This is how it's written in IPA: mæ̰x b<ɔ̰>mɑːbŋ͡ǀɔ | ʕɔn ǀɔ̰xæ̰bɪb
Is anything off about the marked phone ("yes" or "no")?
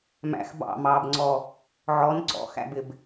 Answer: yes